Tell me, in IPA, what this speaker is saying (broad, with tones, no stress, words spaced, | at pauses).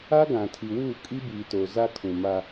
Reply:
a˦ɡã˨tʰi˨wuː˦˨ kʼi˦biː˨to˨ za˦kʰũ˨ma˦